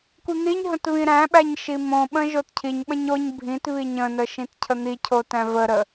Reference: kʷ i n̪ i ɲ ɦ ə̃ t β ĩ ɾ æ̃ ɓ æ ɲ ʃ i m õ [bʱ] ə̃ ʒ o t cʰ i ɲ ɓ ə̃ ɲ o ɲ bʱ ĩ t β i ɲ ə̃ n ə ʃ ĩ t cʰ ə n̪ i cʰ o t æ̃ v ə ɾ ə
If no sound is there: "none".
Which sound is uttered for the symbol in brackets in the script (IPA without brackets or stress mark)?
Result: ɓ